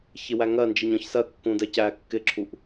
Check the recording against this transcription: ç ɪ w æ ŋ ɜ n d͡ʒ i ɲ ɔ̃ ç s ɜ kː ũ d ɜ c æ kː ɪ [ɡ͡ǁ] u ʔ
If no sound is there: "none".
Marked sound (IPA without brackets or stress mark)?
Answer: ǁʰ